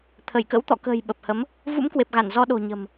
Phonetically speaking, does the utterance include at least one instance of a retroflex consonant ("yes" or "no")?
no